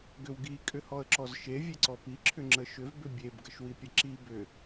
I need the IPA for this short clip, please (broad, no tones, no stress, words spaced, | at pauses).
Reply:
ɡʏwɡi kʼʏhɔə̯ǁɔzʃe vʲeǀɔpi ǁʰʏŋ͡ǁəʃʏv bʏbʲeb ɡəʃwipʲəǁi bʏ